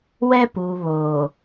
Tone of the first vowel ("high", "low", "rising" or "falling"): high